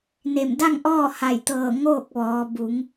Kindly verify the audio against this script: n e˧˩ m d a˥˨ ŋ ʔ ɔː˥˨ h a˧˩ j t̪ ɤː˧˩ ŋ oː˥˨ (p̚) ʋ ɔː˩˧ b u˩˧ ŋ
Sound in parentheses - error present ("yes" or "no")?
yes